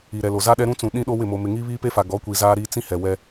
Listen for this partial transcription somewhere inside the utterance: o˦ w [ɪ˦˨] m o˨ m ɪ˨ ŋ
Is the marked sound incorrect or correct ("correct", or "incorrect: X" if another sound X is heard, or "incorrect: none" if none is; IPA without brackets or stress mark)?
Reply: correct